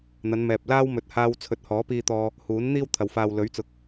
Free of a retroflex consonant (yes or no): yes